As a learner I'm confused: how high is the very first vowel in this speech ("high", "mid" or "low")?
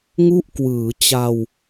high